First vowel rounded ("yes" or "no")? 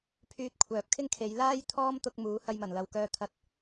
yes